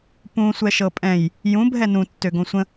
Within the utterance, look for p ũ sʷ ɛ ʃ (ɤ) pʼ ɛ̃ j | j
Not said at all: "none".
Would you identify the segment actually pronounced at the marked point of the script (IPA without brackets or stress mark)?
ɤ